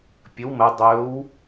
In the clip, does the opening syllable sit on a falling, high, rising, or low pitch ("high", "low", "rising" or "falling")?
rising